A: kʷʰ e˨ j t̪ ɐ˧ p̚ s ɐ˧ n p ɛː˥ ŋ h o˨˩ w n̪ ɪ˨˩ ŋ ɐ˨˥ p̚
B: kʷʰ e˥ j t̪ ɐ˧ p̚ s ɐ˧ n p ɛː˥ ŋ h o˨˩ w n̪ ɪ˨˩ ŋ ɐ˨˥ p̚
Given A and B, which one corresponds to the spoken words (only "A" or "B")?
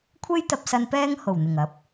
B